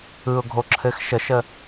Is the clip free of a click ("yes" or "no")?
no